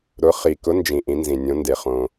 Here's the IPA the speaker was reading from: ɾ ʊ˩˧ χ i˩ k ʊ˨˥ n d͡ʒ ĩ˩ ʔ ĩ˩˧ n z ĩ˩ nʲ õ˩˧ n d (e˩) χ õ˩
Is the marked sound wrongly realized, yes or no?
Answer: no